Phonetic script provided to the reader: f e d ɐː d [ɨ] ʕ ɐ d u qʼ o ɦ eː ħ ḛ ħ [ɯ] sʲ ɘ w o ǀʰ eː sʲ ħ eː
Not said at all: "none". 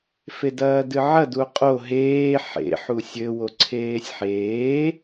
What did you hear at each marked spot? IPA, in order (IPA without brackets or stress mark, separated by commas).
ɨ, u